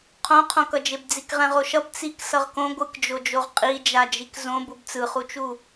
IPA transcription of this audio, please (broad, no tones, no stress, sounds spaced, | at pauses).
qʰ õ qʰ õ k ʌ d͡ʒ e b d͡z i k ʁ ɛ̃ ʁ o ʃ ʌ b t͡s i k s ʌ ʁ k õ ɡʷ ɯ k d͡ʒ o d͡ʒ o ʁ qʼ i d͡ʒ a d͡ʒ i k z õ b u b t͡s ɯ χ u t͡ʃ u